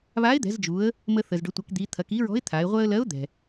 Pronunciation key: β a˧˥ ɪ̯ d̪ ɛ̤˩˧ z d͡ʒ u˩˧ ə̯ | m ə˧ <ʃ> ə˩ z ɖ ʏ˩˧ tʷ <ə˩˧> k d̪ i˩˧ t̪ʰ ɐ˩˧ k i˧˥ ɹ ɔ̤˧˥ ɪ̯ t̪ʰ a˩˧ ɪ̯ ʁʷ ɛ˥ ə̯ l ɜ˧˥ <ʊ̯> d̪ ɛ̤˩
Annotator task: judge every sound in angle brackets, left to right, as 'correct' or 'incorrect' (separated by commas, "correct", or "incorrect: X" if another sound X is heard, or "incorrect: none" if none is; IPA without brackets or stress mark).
incorrect: θ, incorrect: ɐ˩˧, correct